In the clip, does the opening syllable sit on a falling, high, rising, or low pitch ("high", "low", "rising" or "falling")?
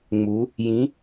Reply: rising